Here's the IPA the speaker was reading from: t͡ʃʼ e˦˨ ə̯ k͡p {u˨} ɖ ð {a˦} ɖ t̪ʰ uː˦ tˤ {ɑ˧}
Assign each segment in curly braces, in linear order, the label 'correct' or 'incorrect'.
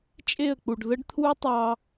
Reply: correct, incorrect, correct

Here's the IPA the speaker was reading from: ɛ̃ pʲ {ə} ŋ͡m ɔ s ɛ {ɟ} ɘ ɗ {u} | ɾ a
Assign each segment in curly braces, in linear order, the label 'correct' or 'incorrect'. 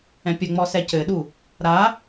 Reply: correct, incorrect, correct

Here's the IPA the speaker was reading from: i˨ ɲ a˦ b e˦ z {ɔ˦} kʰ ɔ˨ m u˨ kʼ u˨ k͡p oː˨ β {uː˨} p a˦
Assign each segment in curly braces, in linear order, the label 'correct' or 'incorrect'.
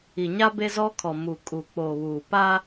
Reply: correct, correct

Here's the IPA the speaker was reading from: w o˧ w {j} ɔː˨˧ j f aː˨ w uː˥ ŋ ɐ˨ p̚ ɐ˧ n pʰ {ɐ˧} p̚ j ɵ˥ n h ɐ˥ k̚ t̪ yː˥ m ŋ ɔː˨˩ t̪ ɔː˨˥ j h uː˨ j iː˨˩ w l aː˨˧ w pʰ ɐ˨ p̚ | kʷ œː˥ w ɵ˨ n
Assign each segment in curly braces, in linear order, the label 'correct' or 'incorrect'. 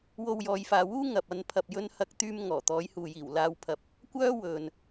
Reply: correct, correct

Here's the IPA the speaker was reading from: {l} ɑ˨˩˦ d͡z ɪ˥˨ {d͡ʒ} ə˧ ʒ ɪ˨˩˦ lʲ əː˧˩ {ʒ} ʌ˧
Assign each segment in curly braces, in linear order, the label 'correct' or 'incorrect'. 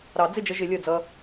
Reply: incorrect, correct, incorrect

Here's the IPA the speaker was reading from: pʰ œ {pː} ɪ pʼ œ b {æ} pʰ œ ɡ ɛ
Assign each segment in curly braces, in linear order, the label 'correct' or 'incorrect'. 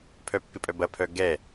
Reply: correct, incorrect

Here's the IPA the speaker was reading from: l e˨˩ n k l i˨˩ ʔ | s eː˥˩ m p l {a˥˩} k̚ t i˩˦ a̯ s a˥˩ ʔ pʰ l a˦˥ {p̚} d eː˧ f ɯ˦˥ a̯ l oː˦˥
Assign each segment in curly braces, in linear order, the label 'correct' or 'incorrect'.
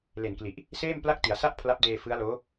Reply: correct, correct

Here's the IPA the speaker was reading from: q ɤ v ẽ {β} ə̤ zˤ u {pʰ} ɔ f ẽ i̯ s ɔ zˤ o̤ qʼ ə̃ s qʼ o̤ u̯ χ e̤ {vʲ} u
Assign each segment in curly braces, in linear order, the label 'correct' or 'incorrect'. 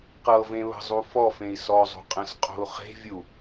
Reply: correct, incorrect, correct

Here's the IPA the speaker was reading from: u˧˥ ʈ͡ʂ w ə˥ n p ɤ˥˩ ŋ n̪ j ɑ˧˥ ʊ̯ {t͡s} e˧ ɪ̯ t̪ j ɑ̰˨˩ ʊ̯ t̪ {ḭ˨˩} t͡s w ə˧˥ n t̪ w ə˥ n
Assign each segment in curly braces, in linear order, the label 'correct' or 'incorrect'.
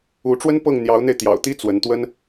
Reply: incorrect, incorrect

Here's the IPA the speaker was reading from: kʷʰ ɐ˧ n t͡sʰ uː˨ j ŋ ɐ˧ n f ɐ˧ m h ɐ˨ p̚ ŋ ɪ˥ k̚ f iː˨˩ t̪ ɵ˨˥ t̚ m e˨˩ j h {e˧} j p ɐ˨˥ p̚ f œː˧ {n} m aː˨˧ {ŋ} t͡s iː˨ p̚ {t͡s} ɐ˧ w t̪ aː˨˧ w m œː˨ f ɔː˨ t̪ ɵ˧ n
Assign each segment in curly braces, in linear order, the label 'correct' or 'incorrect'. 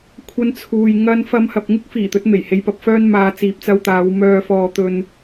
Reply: correct, correct, incorrect, correct

